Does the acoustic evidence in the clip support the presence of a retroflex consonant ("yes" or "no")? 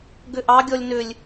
no